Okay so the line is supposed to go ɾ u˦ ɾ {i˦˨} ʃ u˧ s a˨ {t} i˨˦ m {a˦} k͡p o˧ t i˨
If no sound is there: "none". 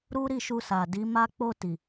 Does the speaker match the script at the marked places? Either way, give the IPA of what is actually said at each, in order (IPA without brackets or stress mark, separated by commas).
i˦˨, d, a˧